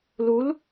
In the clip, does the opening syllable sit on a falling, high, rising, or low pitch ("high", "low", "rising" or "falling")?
rising